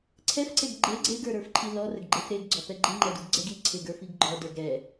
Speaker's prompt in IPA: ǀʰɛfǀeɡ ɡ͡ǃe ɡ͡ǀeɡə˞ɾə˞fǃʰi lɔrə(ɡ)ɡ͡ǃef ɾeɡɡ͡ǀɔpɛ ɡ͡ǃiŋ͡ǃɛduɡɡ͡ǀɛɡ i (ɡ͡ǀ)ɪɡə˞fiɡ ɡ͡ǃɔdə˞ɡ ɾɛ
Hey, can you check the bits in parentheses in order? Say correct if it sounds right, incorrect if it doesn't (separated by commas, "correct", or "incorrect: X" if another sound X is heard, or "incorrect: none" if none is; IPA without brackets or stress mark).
correct, incorrect: ǀʰ